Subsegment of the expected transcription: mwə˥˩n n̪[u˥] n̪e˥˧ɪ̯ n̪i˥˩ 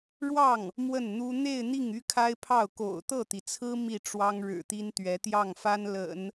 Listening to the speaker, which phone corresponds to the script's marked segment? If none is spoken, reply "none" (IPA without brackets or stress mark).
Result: u˥